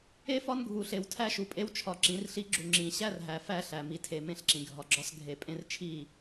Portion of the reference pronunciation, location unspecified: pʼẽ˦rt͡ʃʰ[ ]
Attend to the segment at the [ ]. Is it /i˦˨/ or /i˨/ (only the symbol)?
i˦˨